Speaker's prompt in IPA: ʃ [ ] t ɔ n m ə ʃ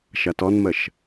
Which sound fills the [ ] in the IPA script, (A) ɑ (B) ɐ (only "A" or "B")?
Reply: B